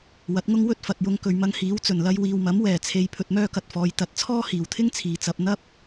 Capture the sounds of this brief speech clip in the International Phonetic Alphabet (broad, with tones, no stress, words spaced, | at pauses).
wɐ˨˥t̚ŋʊ˥ŋ wɵ˥t̚fɐ˨t̚jʊ˧ŋ kɵ˨ɥmɐ˧ŋhiː˨˥w t͡sɵ˨˩nlɐ˧jwiː˨wmɐ˨˥m wɛː˨˩t͡sʰe˨j pʰɵ˧t̚mœː˥kɐ˨t̚fɔː˨˧j t̪ɐ˨˥t̚t͡sʰɔː˥hiː˨˩wt̪ʰɪ˥ŋ t͡sʰiː˨t͡sɐ˧p̚ n̪ɐ˥p̚